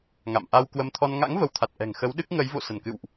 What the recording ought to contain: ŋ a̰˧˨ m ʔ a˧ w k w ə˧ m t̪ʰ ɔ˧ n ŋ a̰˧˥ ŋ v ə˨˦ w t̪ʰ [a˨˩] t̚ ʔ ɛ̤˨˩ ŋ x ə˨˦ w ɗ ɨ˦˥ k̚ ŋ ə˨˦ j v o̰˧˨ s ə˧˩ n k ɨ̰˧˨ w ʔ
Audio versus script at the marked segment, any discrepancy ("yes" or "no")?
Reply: no